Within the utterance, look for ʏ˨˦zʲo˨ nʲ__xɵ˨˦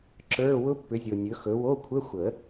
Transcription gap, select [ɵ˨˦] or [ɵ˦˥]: ɵ˨˦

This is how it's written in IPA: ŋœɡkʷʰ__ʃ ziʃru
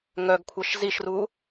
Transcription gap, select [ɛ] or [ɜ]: ɜ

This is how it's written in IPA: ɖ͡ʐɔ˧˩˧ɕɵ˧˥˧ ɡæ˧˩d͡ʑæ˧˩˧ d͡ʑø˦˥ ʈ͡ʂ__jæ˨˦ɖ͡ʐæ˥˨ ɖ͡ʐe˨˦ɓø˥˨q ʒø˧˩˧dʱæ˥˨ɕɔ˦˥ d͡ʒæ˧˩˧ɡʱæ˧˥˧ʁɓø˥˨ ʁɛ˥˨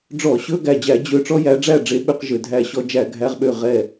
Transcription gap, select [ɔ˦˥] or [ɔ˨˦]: ɔ˦˥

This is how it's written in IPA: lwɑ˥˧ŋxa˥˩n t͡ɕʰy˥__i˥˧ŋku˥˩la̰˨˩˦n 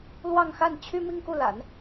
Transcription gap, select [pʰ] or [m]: m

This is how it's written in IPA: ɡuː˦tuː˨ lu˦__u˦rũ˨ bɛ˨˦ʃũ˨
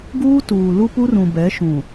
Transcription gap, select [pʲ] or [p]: p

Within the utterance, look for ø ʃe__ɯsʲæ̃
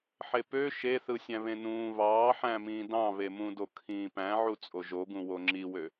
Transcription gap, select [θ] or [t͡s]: θ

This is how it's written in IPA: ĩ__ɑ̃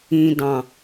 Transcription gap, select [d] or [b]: d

